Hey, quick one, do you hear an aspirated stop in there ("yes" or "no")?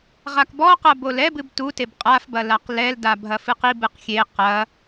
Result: no